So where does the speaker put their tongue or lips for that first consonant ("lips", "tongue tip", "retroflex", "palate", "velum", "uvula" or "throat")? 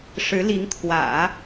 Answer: retroflex